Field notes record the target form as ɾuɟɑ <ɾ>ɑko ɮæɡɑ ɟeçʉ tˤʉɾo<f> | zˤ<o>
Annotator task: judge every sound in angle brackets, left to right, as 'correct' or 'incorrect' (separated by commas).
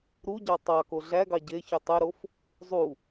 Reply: incorrect, correct, incorrect